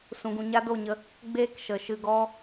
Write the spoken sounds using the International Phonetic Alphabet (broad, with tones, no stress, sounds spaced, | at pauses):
s ũ˨ ɡ ũ˨ ɲ a˦ d o˦˨ ɲ ə˧ | ɡ͡b eː˦ k ʃ ə˨ ʃ ɨ˧ ɡ ɔ˦